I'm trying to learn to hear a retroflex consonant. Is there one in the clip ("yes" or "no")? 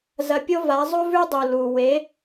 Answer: no